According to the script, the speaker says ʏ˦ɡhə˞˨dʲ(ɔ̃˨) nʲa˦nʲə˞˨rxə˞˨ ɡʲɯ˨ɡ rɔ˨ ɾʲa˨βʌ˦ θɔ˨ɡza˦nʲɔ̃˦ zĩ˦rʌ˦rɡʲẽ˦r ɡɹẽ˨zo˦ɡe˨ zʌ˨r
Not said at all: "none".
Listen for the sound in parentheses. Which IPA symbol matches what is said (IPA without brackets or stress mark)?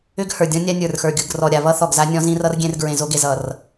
ɔ̃˦